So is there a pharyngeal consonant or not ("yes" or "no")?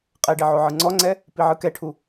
yes